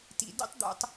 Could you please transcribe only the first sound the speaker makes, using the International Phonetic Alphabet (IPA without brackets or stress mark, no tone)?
t